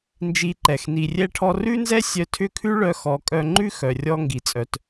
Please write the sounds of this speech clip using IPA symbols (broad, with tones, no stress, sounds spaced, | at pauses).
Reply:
n d͡ʒ i˧ ǃ ɛ˨ x n i˨ rʲ ɛ˧ ʈʰ ɔ˧ r ʉ˦ n z ɛ˦ sʲ œ˧ tʰ ʏ˦˨ kʰ ʉ˦ ɭ œ˧ x ɔ˨˦ kʼ œ˧ ŋ͡ǃ ʉ˦ x œ˨ rʲ ɔ˦ ŋ ɡ i˨ t͡sʼ œ˧ t